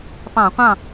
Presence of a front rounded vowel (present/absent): absent